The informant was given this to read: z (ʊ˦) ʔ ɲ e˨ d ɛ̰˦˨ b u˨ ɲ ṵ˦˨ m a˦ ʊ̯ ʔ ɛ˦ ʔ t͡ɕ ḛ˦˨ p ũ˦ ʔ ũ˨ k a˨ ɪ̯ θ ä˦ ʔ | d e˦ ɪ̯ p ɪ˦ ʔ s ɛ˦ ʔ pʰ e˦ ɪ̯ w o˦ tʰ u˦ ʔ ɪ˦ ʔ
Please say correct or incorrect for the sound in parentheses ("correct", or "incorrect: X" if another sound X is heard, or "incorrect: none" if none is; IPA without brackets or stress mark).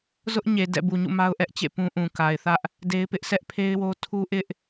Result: correct